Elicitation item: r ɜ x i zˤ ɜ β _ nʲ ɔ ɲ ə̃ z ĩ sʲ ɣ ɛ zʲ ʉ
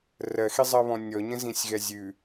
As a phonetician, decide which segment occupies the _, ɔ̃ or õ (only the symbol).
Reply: ɔ̃